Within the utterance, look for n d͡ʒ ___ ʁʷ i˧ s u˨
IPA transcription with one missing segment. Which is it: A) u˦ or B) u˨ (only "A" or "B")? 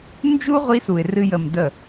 A